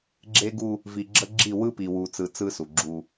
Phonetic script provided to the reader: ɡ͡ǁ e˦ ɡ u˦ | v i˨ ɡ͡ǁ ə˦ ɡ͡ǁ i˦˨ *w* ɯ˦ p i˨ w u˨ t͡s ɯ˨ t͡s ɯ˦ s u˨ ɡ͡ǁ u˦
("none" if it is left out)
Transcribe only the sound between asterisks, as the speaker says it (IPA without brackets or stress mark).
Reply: w